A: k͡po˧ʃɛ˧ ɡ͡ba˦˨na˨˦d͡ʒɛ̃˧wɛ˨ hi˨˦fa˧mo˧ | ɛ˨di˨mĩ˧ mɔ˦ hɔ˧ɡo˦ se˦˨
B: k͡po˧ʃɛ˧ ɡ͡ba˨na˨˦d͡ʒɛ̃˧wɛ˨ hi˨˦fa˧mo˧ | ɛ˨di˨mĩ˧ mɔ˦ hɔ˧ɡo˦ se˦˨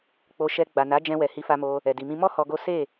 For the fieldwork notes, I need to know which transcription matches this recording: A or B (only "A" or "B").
B